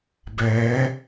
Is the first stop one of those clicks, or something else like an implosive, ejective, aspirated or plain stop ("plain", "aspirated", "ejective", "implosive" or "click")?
plain